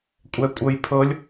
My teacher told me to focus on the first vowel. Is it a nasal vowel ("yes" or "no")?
no